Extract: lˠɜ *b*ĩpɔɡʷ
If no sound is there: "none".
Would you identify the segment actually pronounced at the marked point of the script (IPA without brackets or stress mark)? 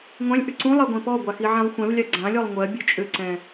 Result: ɡʷ